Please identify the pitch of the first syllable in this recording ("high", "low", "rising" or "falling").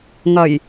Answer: low